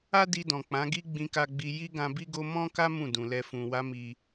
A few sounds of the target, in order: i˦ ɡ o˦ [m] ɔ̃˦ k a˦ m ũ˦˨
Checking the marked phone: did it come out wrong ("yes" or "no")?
no